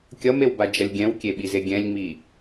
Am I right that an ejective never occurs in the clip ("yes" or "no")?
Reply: yes